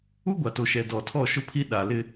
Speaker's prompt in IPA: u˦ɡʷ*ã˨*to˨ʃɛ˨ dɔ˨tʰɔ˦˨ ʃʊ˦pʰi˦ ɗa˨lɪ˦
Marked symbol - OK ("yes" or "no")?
no